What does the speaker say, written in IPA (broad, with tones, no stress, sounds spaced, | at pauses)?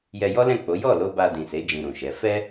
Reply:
j ɛ˧ j ɔ˦ l ɛ̃˦˨ k͡p o˨˦ j ɔ˦˨ l o˧ b a˧ d ĩ˨ s e˨˦ d͡ʒ ĩ˧ ɾ ũ˨ ʃ ɛ˨˦ f ɛ˦